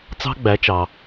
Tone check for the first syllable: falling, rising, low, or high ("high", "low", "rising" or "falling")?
high